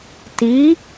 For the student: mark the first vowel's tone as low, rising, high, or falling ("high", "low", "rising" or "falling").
rising